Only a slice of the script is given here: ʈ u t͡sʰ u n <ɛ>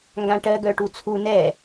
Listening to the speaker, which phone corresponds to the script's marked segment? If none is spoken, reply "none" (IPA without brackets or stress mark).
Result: ɛ